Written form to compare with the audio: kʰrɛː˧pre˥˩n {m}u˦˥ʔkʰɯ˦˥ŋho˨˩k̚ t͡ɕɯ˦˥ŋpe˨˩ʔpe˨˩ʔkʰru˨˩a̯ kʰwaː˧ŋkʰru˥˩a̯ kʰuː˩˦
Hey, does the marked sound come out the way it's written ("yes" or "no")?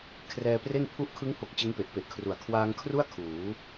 no